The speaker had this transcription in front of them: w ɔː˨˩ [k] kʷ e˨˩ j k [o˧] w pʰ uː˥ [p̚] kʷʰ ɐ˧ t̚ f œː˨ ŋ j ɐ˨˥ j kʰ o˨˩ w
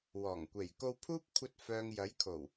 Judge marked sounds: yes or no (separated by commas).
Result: no, yes, yes